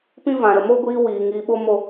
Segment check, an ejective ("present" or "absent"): absent